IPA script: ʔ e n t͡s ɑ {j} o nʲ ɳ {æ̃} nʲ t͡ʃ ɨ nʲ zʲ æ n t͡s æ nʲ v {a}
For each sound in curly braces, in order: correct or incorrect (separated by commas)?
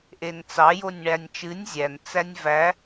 correct, incorrect, incorrect